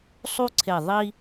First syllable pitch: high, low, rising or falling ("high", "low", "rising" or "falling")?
high